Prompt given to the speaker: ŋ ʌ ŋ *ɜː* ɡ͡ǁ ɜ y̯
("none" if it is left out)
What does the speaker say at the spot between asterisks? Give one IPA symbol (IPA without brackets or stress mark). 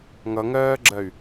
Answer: ɜː